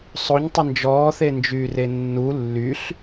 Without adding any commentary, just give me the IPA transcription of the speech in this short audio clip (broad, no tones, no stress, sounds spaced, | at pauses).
sˤ o ɲ tˤ ɪ n d͡ʒ ɔː θ e n d͡ʒ yː r e nː u lː y ɬ